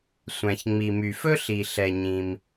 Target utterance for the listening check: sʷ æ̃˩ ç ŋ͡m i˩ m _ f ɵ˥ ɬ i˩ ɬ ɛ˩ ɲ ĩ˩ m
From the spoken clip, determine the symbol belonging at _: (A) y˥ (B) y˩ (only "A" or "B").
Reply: B